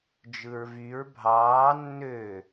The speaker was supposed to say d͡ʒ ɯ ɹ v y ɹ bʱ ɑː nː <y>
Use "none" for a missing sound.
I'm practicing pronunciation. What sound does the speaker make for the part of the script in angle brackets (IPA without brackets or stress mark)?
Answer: ø